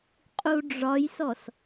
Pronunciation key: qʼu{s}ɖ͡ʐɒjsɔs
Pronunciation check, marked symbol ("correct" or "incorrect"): incorrect